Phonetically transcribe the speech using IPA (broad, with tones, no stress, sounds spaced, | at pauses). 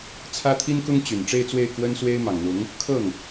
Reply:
t͡sʰ ä˥ t̪ʰ i˥ n k ʊ˥ ŋ t͡ɕ y˨˩ n ʈ͡ʂ e˥˧ ɪ̯ t͡s w e˥˩ ɪ̯ k w ə˥ n s w e˥ ɪ̯ m ɑ˨˩ ŋ n̪ ʊ˧˥ ŋ | kʰ ɤ˥˩ ŋ